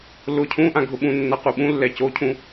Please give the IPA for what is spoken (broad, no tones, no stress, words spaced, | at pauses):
lʊ cʰũʔã ɡʱʊɓũnːa quɓũlːɛ cocʰũ